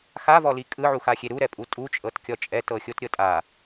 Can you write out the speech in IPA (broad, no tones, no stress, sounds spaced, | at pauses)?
x a v ɔ l i kʼ ɯ ʕ u x a xʲ e ɾ u ɾ ɛ pʼ u tʼ u t͡ʃʼ ɤ t kʲ ɔ t͡ʃʼ ɛ t ɤ xʲ o t ɾʲ ɤ tʼ a